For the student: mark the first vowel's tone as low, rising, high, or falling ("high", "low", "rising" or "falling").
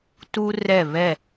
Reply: high